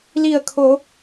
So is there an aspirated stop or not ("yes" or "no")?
yes